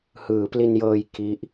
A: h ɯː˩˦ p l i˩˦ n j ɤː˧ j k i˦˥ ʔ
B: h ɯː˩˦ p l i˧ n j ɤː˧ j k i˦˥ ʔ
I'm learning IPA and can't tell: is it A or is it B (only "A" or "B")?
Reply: B